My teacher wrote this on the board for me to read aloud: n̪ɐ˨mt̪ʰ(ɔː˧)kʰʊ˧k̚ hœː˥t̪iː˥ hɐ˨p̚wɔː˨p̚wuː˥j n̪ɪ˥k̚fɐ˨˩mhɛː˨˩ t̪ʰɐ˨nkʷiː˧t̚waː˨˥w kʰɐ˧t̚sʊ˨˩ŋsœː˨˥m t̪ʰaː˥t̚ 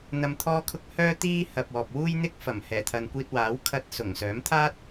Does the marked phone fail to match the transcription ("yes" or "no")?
no